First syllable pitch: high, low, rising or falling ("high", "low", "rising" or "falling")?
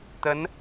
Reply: rising